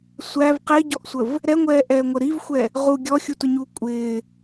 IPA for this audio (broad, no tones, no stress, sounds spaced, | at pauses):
sʷ æ v q ɪː ɟ ɔ ʔ sʷ ə v | ɾ ɛ ŋʷ ɛː ʔ ɛː ŋʷ ə ɾ i v xʷ ɛ | ʁ u ɡʲ ɔ xʲ u t ʊ ɲ uː kʷʼ ɪː